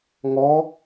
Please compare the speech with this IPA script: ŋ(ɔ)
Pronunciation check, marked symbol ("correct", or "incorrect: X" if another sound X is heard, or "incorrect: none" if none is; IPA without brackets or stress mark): correct